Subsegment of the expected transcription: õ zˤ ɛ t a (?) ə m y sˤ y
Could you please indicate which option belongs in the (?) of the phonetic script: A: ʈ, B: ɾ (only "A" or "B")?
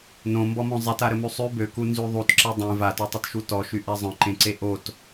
B